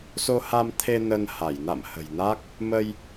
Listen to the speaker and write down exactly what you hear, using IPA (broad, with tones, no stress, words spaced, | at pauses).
so˧ha˧mt̪ʰe˧ nə˧n ha˧˩j na̰˧˨m hə̤˨˩jna˦˥k̚ | mə˧j